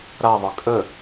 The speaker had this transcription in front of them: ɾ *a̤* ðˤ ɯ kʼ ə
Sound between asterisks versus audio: incorrect: a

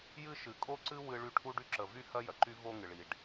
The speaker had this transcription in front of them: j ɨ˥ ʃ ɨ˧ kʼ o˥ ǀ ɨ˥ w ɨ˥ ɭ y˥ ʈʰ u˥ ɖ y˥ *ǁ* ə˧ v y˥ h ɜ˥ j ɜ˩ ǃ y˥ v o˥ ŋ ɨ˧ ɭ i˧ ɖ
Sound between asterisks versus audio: correct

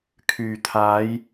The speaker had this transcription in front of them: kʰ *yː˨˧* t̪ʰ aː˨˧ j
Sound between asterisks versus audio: incorrect: yː˨˩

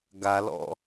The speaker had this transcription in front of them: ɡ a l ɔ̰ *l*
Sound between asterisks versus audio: incorrect: none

